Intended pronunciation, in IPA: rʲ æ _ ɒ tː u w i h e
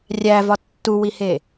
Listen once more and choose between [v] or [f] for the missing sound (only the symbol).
v